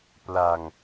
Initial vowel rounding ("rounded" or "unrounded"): unrounded